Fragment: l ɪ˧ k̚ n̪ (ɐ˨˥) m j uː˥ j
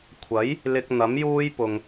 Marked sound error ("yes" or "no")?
no